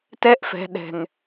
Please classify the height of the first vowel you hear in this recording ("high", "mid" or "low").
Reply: mid